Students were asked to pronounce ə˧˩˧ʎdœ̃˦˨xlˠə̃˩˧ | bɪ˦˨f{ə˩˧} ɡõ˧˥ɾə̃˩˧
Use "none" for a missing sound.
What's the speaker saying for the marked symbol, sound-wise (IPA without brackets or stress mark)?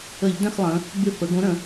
ə˩˧